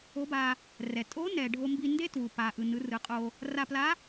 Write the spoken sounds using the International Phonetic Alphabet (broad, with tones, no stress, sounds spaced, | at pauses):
o˧˥ b a˧ | r ɛ˩ tʼ o˧˥ n ɛ˩ ɖʱ o˧ m b i˧ n d e˥ t w u˩ p a˩ ʔ ɯ˩ n ɯ˩˧ r ɯ˩˧ qʼ o˧ | r a˧ p l a˧˥